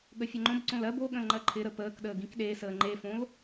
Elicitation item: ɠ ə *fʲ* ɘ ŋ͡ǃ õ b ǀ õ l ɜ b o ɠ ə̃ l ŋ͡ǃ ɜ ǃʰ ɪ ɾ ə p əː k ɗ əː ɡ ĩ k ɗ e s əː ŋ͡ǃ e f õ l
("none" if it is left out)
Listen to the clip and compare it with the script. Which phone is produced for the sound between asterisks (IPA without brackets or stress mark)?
fʲ